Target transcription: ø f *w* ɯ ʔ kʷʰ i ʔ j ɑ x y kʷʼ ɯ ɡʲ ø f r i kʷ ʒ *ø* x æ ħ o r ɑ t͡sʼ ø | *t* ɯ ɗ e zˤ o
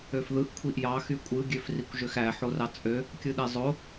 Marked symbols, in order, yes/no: no, yes, no

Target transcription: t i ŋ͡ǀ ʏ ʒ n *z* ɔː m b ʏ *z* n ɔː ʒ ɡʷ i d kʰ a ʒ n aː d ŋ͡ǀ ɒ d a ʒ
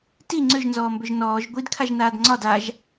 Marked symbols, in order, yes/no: yes, no

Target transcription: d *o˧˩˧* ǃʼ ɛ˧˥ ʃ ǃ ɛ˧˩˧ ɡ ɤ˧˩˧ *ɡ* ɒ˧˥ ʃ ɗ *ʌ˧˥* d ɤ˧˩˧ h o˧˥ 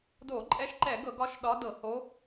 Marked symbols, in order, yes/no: yes, yes, no

